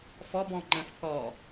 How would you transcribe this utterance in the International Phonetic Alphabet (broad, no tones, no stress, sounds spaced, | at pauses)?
f ɔ b ɔ̃ ŋ͡ǃ ə̃ f k ɔ